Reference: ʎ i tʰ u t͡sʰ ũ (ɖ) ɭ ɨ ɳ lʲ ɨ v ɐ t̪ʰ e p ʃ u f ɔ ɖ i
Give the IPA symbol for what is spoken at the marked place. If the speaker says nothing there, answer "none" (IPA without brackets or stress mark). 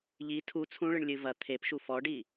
none